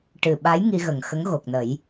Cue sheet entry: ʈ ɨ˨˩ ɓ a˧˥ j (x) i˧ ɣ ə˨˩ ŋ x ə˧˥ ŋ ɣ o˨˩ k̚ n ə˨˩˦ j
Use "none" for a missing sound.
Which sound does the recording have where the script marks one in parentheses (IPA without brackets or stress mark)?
ŋ